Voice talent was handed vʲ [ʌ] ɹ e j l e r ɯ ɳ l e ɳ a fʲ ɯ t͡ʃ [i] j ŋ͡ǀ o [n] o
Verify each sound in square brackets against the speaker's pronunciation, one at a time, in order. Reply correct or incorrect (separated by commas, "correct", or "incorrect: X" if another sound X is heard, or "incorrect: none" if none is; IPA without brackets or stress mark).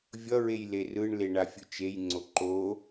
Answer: correct, incorrect: e, incorrect: ǃ